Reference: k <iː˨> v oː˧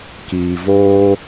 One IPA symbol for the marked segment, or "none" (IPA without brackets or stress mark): iː˨